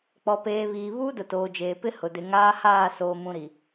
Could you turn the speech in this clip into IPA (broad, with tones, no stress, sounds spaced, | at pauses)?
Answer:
k͡p ɔ˨ p eː˨ β iː˨ β uː˦ d ʊ˨ t oː˨ d͡ʒ eː˨ p ɪ˦ h ʊ˨ d ɪ˨ ŋ aː˦ h aː˦˨ s oː˨ m ũ˨ ɾ i˨